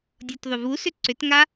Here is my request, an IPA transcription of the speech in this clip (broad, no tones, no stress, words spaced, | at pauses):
dʲɔtðˤʏvusʏ ǀʏtŋa